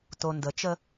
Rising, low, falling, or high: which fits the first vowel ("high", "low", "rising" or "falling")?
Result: low